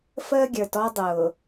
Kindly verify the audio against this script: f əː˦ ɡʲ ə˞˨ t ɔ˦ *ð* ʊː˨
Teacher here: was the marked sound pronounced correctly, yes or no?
no